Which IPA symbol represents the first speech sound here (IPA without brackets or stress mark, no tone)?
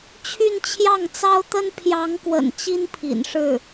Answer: t͡ɕʰ